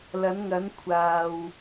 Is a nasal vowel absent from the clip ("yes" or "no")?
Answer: yes